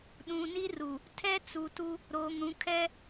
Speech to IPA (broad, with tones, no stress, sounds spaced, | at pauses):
ɗ ũ˨ n i˦ r u˨ | tʰ ɛ˦ t͡s u˨ t u˦ | ɾ oː˨ ŋ ɾ ũ˨˦ kʰ ɛ˦